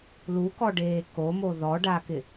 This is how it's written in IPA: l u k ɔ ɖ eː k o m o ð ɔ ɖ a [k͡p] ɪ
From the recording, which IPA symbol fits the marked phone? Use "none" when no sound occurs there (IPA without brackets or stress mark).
k